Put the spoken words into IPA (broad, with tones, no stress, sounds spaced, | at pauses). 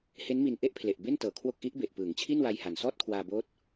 h e˦˥ n m i˧ n ʔ e˥˩ ʔ pʰ l e˨˩ ʔ b e˥˩ n t ɤː˩˦ kʰ w o˦˥ k̚ ʔ i˦˥ ʔ b e˨˩ ʔ p ɯː˩˦ ŋ t͡ɕʰ i˥˩ n w a˧ j h a˨˩ n s ɔː˥˩ t̚ kʰ w aː˧ b oː˦˥ t̚